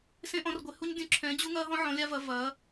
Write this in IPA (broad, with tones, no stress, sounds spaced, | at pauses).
s ẽ˦ ʔ ɔ̃˨˦ r ɡʷ e˨˦ h u˦ ɲ dʲ ũ˨˦ ǁʰ ɛ̃˨˦ d͡ʑ u˦ ŋ ɐː˦ ɦ ɔ̃˦ ʕ ɔ̃˨˦ lʲ a˦ v ɐ˨˦ v ɐː˨˦